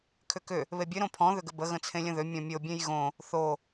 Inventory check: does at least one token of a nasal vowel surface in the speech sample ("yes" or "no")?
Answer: yes